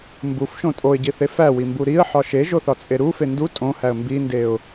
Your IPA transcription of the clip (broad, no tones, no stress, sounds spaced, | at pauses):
m b u f ʃ õ tʼ o ɪ̯ ɟ i θ e f æ w i m b u ɾ i ə̯ ħ ɒ ʃ e ʒ o θ ɒ t͡sʼ e ɾ u f e n d u tʼ õ h æ ə̯ m b i n d e ʊ̯